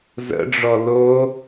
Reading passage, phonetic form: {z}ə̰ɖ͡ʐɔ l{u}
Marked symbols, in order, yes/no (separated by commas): yes, no